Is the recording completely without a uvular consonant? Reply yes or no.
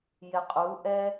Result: no